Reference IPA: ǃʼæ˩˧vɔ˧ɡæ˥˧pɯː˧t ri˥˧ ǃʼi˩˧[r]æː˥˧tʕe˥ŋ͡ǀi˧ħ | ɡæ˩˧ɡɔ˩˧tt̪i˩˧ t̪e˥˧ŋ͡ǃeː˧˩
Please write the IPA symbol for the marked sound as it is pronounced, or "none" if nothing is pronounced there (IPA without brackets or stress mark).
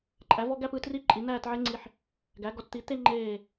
n̪